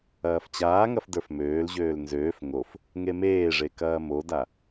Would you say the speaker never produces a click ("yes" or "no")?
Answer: yes